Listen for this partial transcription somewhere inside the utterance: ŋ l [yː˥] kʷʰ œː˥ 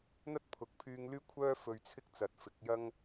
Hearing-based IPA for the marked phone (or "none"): yː˥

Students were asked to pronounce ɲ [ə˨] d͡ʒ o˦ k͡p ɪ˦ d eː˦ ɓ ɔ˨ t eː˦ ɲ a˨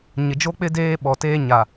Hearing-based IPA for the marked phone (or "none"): ɪ˨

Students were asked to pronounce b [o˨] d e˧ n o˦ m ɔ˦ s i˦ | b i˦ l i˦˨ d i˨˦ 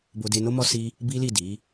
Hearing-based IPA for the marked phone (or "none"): o˧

